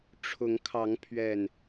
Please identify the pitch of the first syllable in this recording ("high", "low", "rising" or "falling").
rising